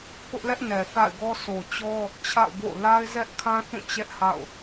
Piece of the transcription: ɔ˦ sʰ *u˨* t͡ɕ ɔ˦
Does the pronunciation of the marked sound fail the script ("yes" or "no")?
yes